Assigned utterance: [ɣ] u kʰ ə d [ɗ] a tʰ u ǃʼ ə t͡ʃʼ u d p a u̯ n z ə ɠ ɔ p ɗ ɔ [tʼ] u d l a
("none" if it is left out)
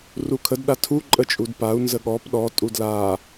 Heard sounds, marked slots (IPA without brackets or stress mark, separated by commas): r, ɗ, tʼ